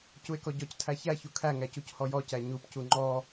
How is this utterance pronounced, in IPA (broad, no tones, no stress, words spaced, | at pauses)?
cue̯kɔɟɔc tʰæçæ çukʰæŋæ cuchɔjɔcæ ɲupcu ŋ͡ǃɔ